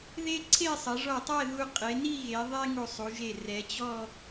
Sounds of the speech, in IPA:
ð e˥ ǀʰ e˥˧ sˤ ɐ˩˧ ʐ ɔ˧˩ tˤ ɛ˥˧ ð u˧ qʼ e˩˧ n i˥˧ ɣ e˩˧ ðˤ e˥ ŋ u˧˩ sˤ u˩˧ ʒ e˧˩ r ɛ˩˧ t͡ɕ ɔ˥˧

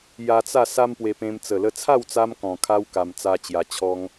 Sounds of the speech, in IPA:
j a˧ t͡s a˥˧ s a˦ m p w e˧ p ẽ˧ m t͡s ə˨˩ l ə˧ t͡sʰ a˥˧ w t͡s a˧ m k ɔ̃˨˩ kʰ a˧ w k a˧ m t͡s a˦ t͡ɕ j a˧ t͡ɕʰ ɔ˦ ŋ

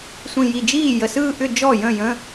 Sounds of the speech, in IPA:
sʷ ĩ˨˩ j i˨˩ d͡ʒ iː˥˩ j ə˨˩ s ɯː˥˧ ʔ ʏ˥˧ d͡ʒ ɔ˥˩ j ə̃˥˩ j ə̃˧˥˧

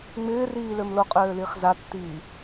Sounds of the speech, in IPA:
ŋ͡m ɪː r iː l ø m l o qʼ øː l i χ z a tː iː

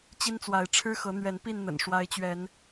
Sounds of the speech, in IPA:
t͡ɕ i˦ n t͡s w a˨˦ ɪ̯ ʈ͡ʂʰ ɻ̩˦ x ɤ˨˦ n̪ ɥ ɛ˨˦ n p i˥˨ n n̪ ə̰˨˩ n ʂ w a˦ ɪ̯ t͡ɕ ɥ ɛ˨˦ n

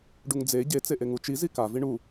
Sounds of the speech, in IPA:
ɖ u ŋ d͡z e ɟ e t͡s e ʔ e ŋ u t͡ʃ i z i k a v i ɳ u

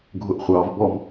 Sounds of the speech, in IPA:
ɡʱ ʊ ʔ χʷ ɑ v b ɔ m

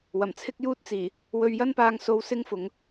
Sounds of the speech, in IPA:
w ɐ˨˩ m t͡sʰ ɪ˥ k̚ j uː˥ t̚ t͡s iː˨˩ | w ɵ˧ ɥ j ɐ˥ n p aː˧ ŋ s o˧ w s ɪ˥ ŋ f ʊ˨˧ ŋ

